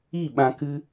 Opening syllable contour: falling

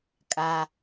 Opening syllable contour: low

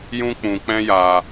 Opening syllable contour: high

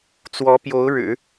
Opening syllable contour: rising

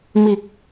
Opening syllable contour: low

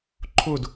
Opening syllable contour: falling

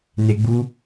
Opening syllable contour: high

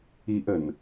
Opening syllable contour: high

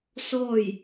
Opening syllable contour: falling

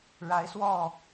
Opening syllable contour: rising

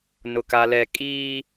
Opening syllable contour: high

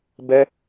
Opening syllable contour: high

